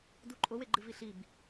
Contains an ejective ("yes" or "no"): yes